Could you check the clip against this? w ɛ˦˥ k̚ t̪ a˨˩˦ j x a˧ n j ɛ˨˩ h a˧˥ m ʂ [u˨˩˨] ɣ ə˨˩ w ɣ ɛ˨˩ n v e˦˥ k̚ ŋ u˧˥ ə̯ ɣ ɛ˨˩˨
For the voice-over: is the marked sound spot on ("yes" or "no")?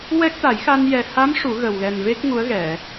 no